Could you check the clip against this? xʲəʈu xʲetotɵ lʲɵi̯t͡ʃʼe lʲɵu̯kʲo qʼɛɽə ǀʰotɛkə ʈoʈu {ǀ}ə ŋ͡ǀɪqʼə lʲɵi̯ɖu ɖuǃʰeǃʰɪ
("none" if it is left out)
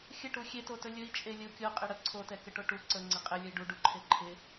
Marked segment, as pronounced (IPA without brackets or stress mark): ǀ